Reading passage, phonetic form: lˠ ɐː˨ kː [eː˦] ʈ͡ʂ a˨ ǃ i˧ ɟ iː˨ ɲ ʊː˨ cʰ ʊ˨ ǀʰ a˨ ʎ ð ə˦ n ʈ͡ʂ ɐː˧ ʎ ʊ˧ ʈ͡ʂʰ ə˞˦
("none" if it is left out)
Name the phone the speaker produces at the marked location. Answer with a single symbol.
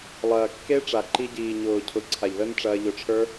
e˦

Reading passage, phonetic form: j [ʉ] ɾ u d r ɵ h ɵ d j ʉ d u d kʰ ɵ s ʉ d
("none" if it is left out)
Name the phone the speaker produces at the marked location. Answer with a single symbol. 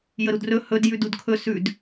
ə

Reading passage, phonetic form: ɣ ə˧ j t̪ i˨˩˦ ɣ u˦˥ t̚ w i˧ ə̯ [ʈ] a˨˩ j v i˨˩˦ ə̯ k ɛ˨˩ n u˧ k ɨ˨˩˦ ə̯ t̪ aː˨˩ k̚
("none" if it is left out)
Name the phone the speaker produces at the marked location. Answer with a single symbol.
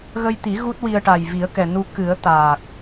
ʈ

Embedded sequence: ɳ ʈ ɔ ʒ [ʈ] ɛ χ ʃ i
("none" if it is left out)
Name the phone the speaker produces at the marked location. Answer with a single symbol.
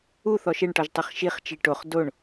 tˤ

